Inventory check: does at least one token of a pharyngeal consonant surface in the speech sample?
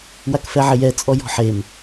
yes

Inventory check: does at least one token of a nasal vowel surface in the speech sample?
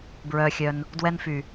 no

